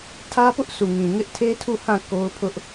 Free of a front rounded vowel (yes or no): yes